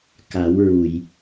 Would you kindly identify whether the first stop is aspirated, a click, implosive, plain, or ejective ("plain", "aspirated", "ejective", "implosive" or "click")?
plain